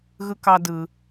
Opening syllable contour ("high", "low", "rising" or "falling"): high